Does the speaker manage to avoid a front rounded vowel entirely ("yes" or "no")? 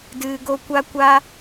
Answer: yes